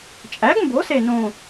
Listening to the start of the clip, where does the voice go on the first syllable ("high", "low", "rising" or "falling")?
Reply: rising